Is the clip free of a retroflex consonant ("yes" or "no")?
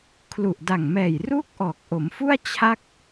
yes